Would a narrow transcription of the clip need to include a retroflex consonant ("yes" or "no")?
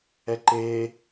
no